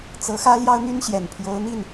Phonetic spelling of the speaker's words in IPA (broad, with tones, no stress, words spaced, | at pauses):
t͡sɤ˧˥ xä˥ljɑ˥ʊ̯n̪y˥nɕjɛ˨˩n pʰjo˧˥ʊ̯n̪i˥˩n